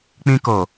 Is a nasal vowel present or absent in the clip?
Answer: present